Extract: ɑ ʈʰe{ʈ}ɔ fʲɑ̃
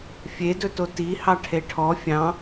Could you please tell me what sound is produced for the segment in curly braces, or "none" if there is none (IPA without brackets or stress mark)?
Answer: ʈʰ